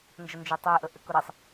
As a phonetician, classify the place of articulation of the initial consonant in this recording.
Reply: alveolar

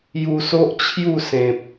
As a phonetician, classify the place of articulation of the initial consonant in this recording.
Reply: palatal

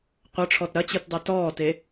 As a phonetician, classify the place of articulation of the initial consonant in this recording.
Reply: uvular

